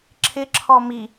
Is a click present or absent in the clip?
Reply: present